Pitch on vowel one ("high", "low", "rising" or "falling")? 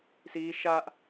high